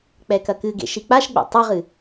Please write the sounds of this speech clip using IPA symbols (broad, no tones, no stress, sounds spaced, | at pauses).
k͡p ɛ k ɐ k ɨ ɡ ḛ ʃ i k͡p a ʃ ɡ͡b ḛ tˤ ɛ ʁ ɨ